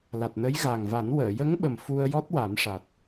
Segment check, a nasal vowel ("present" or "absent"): absent